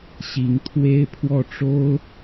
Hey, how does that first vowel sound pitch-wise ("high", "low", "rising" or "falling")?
rising